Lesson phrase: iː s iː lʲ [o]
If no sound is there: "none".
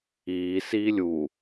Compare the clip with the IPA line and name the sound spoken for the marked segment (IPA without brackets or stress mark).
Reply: u